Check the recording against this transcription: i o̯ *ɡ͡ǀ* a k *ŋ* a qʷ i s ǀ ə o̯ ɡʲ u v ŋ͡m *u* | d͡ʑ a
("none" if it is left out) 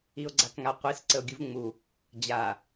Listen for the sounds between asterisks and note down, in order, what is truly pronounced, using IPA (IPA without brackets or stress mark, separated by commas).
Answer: ɡ͡ǀ, ŋ, u